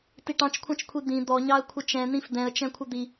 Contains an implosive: no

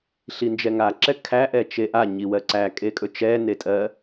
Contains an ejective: yes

